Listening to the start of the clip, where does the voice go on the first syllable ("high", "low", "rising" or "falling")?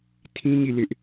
high